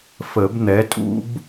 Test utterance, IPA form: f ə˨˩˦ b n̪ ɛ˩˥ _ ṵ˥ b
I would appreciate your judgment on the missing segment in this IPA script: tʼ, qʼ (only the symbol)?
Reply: tʼ